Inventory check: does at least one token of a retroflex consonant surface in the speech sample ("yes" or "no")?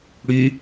yes